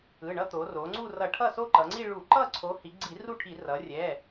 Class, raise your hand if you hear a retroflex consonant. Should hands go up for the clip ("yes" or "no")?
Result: yes